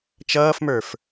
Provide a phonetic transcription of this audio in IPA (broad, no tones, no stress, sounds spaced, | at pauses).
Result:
t͡ʃ ʌː f m ə˞ f